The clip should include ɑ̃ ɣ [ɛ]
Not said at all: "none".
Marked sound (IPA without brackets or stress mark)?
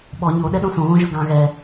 ɛ